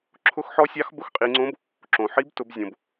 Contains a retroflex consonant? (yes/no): no